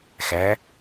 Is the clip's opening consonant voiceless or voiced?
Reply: voiceless